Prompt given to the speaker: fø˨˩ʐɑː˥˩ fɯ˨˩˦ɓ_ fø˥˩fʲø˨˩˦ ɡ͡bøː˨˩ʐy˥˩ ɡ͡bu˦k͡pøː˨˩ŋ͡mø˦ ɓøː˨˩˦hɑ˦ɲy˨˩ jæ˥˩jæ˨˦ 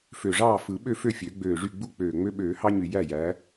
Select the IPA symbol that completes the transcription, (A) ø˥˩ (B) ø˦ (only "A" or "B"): A